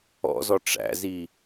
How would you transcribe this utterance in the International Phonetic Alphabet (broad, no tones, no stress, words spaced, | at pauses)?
ɔ̰zɔ ʈ͡ʂæ̰zi